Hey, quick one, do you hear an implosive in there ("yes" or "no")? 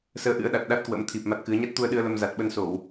yes